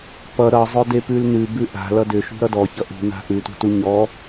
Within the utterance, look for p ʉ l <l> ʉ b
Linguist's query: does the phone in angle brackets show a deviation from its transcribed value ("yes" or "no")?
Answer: yes